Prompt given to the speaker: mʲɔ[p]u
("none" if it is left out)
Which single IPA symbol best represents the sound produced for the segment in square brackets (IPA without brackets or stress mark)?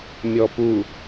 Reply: p